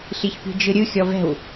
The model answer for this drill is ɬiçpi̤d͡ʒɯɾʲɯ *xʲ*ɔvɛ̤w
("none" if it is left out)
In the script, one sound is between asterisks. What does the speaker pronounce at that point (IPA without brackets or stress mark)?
xʲ